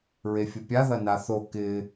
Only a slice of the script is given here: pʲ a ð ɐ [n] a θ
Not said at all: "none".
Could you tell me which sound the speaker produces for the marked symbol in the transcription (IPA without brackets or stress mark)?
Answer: n